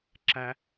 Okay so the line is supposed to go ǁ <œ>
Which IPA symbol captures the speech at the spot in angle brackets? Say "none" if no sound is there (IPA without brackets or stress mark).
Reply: æ